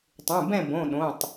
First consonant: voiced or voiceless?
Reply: voiceless